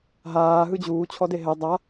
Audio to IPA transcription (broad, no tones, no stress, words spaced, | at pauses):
ɦaː ɦɯd͡ʑuː t͡ɕʰɔdeɦɛ dˤa